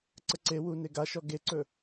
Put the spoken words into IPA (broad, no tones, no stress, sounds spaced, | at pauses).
ǀ ə ǀ e w u n e ɡ a ʃ ɔ ɡ e ǀ ɵ